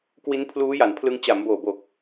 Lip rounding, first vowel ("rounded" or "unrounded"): unrounded